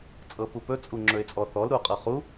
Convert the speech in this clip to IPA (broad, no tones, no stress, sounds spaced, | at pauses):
t͡sʼ ɤ p u p ɵ t͡sʼ u ŋ͡ǁ ɵ ɪ̯ t͡sʼ ɔ θ ɔ l ɾ u qʼ ɤ χ u